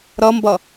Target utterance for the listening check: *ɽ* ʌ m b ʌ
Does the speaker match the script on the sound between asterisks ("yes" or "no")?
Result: no